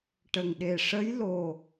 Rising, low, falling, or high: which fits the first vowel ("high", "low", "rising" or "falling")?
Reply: low